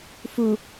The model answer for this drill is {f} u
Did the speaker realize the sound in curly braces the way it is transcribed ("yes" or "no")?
yes